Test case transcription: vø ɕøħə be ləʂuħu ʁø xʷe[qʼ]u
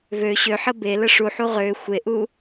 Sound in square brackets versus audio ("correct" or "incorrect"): incorrect